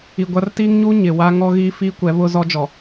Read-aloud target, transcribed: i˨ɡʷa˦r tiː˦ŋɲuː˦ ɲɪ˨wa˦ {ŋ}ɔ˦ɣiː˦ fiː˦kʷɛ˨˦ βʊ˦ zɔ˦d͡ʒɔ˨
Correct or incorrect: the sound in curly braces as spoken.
correct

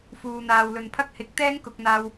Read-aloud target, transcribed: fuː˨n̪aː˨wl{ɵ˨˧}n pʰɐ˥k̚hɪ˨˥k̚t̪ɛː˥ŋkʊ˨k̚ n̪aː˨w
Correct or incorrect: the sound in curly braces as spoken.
incorrect: ɵ˨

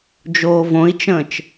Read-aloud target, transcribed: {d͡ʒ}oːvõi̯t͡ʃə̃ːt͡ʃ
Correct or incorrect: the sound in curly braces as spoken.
correct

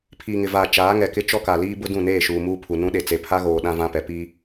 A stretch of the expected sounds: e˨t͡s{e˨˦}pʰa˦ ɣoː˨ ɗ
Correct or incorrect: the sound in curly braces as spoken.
incorrect: e˨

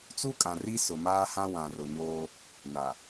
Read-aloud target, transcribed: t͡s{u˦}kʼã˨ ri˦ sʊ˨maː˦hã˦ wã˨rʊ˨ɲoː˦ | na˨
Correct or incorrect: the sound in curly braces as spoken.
correct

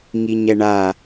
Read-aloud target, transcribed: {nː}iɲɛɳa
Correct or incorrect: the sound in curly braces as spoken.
incorrect: ŋ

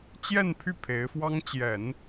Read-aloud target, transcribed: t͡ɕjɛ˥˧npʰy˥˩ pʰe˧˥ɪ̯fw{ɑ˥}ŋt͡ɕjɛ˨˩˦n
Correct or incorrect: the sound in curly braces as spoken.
correct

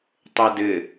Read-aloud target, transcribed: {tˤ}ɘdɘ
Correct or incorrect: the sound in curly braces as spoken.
correct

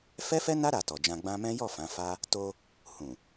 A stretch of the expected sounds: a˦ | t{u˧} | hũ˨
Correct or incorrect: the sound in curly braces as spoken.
incorrect: o˧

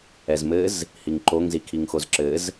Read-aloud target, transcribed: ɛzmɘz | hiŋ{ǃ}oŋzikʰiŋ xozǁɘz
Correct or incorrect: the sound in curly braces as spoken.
correct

